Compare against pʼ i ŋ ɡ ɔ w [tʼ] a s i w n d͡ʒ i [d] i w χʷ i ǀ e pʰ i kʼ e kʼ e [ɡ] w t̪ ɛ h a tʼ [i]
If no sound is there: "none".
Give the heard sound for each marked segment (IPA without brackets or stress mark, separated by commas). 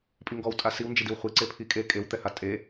tʼ, d, none, e